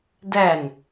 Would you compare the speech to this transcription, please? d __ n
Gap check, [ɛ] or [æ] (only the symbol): æ